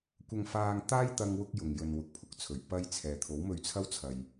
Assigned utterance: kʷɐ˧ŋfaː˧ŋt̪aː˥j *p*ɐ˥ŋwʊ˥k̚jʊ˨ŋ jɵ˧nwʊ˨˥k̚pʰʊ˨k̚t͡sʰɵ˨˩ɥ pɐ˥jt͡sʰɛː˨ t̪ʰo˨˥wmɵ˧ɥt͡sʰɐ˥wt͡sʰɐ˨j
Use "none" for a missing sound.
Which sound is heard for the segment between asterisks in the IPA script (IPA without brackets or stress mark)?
t̪